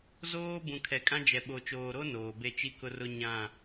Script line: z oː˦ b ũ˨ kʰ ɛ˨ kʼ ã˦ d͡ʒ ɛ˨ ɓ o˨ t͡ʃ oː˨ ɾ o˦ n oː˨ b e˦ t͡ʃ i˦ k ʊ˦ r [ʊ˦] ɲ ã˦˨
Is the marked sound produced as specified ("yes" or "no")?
yes